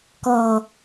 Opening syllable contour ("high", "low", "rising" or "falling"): low